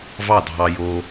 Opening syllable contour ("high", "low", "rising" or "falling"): falling